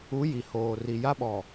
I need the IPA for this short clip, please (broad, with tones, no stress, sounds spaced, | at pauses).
u˨˦ j i˨ h oː˨ r i˨ j a˦ ɓ ɔ˨